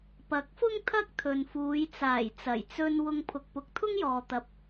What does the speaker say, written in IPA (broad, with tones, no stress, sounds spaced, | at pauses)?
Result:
p ɐ˨˥ k̚ f ʊ˥ ŋ t̪ʰ ɐ˥ k̚ t̪ʰ ɵ˨ n f uː˨˧ j t͡s aː˨˩ j t͡s ɐ˨˩ j t͡s ɵ˧ n w ʊ˧ ŋ pʰ ʊ˨ k̚ p ʊ˨˥ k̚ t̪ʰ ʊ˥ ŋ j ɔː˨ t̪ ɐ˨ p̚